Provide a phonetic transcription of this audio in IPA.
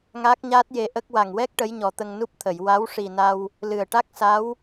ŋ aː˦˥ k̚ ɲ aː˦˥ t̚ j e˧ ʔ ə˦˥ k̚ w a˨˩ ŋ w ɛ˦˥ k̚ ʈ ə˧˥ j ɲ ɔ˨˩ t̪ ə˧ ŋ n u˦˥ p̚ t̪ʰ ə˨˩˨ j w a˧˥ w ʂ i˨˩ n a˧ w | l ɨ˨˩ ə̯ ʈ a˦˥ k̚ s a˧˥ w

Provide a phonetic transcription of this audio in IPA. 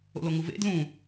o̰ l o ŋ u v ḛ d l ũ

